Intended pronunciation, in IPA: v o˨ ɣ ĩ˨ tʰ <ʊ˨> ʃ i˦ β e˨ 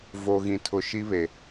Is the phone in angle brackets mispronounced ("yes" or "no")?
no